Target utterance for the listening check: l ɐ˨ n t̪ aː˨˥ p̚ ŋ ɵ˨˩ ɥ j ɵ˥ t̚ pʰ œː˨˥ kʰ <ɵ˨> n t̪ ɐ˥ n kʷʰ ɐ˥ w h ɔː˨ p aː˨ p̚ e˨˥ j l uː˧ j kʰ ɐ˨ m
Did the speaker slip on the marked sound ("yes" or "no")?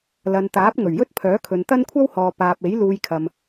no